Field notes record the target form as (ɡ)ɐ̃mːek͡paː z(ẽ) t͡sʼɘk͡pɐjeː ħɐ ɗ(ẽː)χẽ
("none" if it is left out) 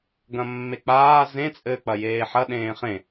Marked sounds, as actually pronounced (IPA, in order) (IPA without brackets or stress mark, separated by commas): ɡ, ẽ, ẽː